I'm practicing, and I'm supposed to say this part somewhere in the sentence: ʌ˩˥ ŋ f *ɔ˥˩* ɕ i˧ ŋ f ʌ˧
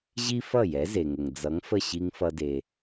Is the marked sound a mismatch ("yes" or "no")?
yes